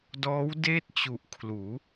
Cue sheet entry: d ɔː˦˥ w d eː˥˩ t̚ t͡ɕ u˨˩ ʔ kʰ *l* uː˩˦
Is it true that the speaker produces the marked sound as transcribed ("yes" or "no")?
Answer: yes